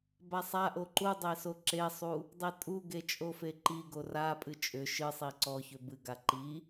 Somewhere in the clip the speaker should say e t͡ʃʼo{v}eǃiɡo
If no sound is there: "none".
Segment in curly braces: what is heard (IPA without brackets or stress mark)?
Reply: f